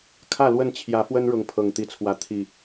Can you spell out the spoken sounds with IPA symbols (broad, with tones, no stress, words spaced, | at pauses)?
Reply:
kʰä˥˨lwə˥˨n t͡ɕʰjä˨˦fwə˦nɻʊ˨˦ŋ pʰɤ˨˩ŋt̪i˨˦t͡sʰwä˨˦ t̪ʰi˨˩